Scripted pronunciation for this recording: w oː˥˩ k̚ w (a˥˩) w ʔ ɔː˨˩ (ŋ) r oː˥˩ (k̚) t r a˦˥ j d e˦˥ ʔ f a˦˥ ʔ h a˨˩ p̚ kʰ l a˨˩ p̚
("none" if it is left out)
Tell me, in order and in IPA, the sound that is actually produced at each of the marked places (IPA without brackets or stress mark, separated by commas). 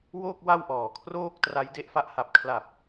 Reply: a˥˩, kʰ, k̚